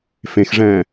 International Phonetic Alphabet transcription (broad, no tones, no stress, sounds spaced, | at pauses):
f ẽ x ʐ ɛ̃ː